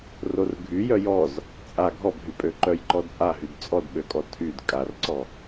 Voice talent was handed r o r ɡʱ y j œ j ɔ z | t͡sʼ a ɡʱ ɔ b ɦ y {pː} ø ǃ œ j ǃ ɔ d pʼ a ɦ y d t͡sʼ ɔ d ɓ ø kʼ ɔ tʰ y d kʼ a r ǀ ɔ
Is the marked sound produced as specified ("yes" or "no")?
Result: no